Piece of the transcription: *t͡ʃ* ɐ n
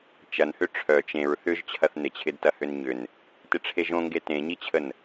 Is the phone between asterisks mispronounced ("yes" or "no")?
no